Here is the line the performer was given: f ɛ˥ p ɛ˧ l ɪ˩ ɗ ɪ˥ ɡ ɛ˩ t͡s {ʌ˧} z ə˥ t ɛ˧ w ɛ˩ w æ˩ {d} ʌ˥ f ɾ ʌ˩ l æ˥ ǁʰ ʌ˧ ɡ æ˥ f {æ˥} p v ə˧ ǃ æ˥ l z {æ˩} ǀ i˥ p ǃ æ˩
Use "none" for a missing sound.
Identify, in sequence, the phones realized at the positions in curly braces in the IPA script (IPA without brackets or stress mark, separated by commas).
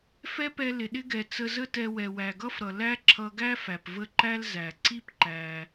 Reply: ə˧, ɡ, æ˩, æ˩